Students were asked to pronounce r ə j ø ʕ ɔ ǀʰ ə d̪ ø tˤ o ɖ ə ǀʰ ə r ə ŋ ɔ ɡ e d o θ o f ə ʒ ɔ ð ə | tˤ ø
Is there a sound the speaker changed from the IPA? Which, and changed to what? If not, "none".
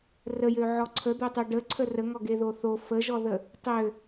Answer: d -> ð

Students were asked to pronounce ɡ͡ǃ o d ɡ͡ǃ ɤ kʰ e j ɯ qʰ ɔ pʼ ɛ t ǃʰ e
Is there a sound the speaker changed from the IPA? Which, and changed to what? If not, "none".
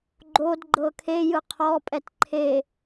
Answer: none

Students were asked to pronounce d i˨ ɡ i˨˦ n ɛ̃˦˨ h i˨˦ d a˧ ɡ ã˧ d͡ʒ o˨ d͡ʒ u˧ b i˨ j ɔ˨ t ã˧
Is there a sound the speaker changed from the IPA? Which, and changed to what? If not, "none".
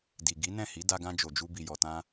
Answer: none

